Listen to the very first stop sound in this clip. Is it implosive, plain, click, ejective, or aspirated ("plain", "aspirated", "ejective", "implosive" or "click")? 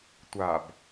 plain